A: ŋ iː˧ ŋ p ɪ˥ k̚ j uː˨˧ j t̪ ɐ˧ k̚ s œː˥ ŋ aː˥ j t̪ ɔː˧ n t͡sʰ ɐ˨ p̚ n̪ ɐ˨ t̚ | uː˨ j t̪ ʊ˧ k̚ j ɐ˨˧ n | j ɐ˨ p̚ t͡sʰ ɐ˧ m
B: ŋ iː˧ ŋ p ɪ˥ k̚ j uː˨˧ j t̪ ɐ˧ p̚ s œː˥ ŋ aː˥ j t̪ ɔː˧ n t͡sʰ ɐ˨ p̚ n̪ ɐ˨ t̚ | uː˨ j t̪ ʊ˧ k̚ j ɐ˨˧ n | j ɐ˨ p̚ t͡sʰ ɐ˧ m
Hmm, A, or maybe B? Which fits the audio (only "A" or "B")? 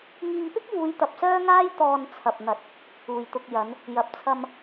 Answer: B